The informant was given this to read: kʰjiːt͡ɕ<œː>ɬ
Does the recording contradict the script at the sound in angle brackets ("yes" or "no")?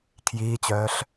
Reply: no